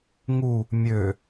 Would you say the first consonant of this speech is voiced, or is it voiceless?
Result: voiced